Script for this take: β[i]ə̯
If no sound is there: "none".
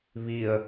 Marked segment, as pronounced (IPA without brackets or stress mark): i